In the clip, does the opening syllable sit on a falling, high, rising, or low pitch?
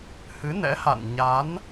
rising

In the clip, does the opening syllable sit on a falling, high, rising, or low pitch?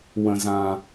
low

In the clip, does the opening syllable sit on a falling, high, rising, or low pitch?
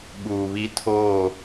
low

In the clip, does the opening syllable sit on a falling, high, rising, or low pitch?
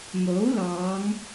rising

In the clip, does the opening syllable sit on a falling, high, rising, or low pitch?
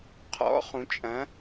rising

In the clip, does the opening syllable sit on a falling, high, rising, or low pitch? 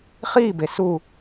falling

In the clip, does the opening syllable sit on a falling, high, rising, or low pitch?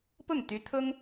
falling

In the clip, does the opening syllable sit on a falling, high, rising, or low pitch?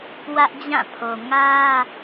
high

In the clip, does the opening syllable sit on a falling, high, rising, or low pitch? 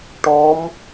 rising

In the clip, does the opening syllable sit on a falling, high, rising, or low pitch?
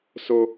high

